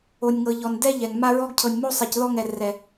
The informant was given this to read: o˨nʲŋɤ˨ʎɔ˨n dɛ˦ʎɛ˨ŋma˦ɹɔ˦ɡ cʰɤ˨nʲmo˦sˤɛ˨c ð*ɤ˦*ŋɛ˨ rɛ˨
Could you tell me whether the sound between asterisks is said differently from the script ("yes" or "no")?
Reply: yes